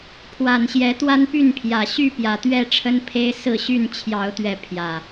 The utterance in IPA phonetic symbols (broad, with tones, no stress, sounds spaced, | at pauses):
pʰ w a˨˩ n ɕ j ɛ˨˦ t̪ w a˦ n p y˥˨ n pʰ j ä˨˩ ɕ y˥˨ p j ä˨˩ t̪ ɥ ɛ˥˨ ʈ͡ʂʰ ə˦ n pʰ e˦ ɪ̯ s ɹ̩˥˨ ɕ y˥˨ n t͡ɕʰ j ɑ˨˦ ʊ̯ t̪ ɥ ɛ˨˦ pʰ j ä˨˩